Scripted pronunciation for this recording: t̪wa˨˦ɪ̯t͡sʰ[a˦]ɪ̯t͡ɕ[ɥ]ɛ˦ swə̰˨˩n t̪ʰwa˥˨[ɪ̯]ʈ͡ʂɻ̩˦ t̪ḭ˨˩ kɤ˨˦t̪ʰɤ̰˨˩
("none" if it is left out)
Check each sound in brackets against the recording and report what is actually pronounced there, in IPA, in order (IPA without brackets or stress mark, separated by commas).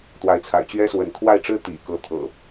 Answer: a̰˨˩, ɥ, ɪ̯